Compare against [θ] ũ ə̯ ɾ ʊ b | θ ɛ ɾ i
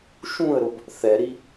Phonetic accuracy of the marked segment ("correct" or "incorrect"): incorrect